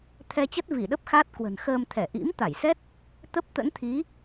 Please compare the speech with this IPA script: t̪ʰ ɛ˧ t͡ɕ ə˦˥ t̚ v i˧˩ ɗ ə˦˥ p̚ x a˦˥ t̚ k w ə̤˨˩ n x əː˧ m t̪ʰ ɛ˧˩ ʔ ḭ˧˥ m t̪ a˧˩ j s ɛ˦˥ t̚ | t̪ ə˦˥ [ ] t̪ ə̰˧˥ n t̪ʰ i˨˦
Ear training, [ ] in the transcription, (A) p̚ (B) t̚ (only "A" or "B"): A